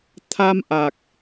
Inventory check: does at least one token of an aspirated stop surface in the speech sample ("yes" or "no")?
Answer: yes